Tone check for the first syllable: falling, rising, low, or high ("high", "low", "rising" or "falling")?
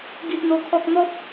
high